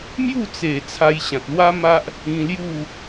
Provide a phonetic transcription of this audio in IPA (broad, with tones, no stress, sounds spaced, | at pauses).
m j u˥˧ t͡s e˨˩ t͡sʰ a˧ j ɕ ã˨ t̚ l w a˦ m a˦ ʔ | ĩ˧ l j u˥˧